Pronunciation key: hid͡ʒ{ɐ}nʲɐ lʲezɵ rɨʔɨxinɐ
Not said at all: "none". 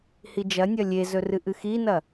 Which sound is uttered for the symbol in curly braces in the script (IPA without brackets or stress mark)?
ɐ